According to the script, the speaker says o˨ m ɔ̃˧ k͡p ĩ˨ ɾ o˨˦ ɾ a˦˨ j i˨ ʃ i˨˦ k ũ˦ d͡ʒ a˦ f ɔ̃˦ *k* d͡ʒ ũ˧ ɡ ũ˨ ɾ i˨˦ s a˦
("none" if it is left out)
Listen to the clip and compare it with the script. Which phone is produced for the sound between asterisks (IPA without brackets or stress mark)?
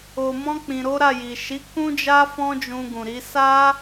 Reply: none